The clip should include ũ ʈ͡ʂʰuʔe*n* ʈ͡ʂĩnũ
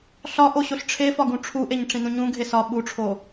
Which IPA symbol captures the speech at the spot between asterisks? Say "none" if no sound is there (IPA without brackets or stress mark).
ɲ